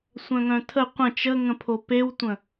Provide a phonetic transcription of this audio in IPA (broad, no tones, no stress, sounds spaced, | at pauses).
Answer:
sʷ œ̃ ŋ œ̃ tʰ ə qʷ ə̃ t͡ʃ ə ŋ ə̃ pʰ o p e w tʷ ə̃